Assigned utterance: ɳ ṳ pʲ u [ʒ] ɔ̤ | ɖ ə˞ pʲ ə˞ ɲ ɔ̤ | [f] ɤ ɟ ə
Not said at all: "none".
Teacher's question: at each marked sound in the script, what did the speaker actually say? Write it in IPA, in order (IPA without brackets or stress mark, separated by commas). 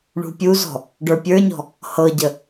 z, h